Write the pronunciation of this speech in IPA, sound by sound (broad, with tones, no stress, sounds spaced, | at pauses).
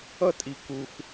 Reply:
ʌ˥ tʼ i˩ k u˩ x